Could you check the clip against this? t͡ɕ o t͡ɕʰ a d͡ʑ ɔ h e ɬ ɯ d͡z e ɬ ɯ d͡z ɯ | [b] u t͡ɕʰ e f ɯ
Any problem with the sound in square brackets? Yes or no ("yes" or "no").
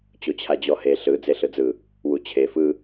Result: yes